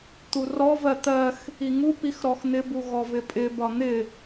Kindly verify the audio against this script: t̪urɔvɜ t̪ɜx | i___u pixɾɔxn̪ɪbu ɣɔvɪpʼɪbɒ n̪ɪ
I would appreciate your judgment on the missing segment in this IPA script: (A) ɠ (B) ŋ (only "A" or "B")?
B